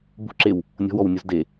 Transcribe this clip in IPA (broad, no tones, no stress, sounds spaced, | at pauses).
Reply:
b ṳ ǁ e w | nʲ ɔ̤ w ɔ w nʲ u z d e